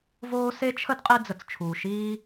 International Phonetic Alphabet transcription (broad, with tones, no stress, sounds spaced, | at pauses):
v oː˦ s e˦ t͡ʃʰ ə˦ d qʼ i˦ d͡z ə˩ t͡s t͡ʃʰ uː˩ ʃ iː˦